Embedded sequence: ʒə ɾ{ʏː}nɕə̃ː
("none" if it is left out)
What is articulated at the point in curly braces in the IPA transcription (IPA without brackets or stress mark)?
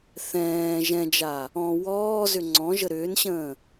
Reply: ʏː